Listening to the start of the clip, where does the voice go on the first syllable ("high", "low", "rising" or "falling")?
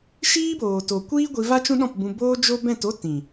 high